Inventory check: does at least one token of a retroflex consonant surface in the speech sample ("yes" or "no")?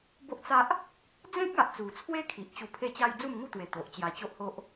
no